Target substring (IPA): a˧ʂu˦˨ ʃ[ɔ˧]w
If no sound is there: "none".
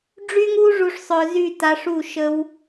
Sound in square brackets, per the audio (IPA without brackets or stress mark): ə˧